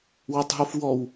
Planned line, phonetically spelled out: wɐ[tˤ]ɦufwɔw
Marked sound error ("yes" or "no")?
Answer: no